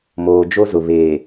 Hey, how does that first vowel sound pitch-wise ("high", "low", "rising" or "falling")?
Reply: low